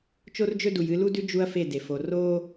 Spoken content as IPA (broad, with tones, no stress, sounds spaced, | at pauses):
t͡ʃ o˦ r d͡ʒ ɵ˦ d u˨ j ɨ˦ l u˦ d ʉ˦ d͡ʒ u˦ ɐ̯ f e˦˨ d e˨ f o˨ r oː˦